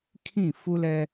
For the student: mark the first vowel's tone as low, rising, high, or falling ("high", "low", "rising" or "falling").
falling